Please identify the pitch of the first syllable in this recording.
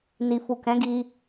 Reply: low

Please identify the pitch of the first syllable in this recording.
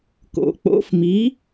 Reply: low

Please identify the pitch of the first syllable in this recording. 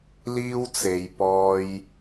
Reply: high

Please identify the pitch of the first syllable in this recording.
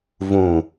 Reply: low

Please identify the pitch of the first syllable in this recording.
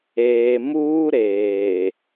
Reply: low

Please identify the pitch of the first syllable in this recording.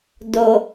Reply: low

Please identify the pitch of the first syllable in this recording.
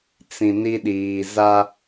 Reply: low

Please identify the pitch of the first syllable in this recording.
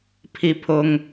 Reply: falling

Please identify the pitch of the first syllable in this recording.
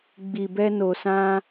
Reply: low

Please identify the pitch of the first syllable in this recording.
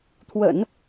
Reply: low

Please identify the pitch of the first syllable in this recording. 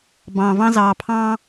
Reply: low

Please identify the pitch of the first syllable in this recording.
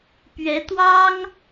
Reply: rising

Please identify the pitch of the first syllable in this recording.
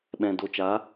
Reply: low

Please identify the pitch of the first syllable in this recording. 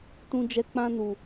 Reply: high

